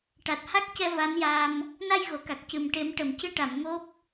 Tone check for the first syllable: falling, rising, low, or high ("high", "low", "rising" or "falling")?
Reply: low